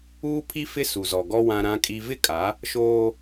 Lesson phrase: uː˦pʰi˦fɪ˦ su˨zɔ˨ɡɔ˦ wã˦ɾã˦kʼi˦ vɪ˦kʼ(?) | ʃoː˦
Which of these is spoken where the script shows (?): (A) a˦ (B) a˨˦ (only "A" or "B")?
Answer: B